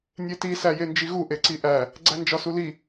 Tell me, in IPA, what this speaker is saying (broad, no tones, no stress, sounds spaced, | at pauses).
nʲ e t i s æ j e n d͡ʒ i ɣ u ʔ e ǀ i ʔ æ | ɡ͡ǀ æ n d͡ʒ ɒ s u l i